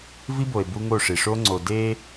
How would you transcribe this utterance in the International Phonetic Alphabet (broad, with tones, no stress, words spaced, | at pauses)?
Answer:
vi˦bo˨e̯ bu˦ŋo˦˨ʂi˨ ʂo˦ŋ͡ǀo˨ de˦